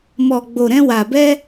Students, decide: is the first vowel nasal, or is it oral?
oral